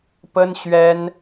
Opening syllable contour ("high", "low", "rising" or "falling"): high